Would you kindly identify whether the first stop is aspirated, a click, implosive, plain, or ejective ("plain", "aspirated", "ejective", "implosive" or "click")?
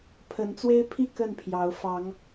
aspirated